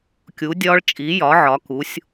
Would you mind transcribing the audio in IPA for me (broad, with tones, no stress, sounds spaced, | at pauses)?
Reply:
kʲ u˨˥ dʲ ɒː˦˥ ɭ t͡ʃʼ i˨˥ j ɒ˨˥ ʕ ɒ˨˥ k u˨˥ sʲ